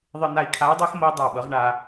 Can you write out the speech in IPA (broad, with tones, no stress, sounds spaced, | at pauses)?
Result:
ðˤ ɨ˧ n̪ a˧ i̯ kʰ a˧˥ u̯ dˤ ɛ˥ x m ɤ˥ i̯ dˤ a˥˩ ɓ ɤ˧˥ ʁ ɳ a˧